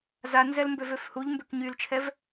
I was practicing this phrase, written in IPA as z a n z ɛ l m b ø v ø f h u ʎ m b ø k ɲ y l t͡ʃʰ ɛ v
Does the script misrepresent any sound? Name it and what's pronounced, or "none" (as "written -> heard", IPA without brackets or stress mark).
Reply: none